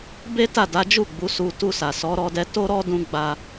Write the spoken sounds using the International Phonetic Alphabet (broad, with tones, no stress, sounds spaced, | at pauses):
b e˦ t a˦˨ d a˨˦ d͡ʒ u˦˨ ɡ͡b u˨˦ s u˧ t u˧ s a˨ s ɔ˨˦ ɾ ɔ˧ d ɛ˧ t o˦ ɾ ɔ˦ d ũ˦ ɡ͡b a˧